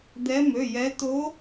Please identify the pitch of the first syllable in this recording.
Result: rising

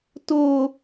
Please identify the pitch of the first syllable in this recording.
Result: high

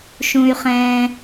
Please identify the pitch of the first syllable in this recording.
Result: low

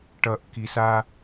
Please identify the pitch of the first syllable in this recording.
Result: low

